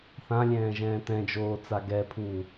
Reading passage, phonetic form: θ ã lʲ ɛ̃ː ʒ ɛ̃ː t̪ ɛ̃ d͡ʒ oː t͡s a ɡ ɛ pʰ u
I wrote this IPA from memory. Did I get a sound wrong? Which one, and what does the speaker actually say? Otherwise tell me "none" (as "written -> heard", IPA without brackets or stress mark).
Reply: none